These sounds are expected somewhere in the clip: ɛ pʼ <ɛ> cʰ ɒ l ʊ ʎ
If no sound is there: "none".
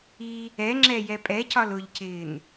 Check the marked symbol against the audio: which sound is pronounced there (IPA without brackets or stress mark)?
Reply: ɛ